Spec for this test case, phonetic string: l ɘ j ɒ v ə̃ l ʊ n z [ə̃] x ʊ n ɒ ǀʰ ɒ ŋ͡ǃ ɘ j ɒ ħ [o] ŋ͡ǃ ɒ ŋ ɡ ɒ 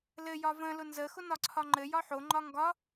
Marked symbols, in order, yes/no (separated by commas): no, yes